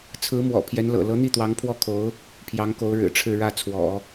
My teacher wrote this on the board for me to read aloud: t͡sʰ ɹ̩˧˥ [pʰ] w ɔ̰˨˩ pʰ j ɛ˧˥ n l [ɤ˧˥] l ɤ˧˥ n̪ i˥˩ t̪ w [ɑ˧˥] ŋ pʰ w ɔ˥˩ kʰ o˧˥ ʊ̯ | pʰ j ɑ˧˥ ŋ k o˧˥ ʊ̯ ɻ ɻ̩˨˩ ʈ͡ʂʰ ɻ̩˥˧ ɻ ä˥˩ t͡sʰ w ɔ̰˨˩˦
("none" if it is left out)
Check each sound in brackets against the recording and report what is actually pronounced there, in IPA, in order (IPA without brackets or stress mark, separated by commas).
m, ɤ̰˨˩, ɑ˧˥